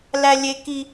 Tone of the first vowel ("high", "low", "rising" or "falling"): high